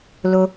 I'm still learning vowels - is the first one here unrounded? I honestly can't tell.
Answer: no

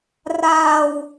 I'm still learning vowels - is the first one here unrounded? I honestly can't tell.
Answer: yes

